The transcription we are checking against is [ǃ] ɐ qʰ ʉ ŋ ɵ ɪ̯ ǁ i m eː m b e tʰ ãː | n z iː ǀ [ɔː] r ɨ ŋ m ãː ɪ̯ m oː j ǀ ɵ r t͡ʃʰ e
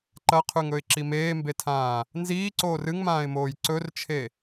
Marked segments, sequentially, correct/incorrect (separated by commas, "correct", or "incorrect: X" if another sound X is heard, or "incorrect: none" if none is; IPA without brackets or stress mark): correct, incorrect: oː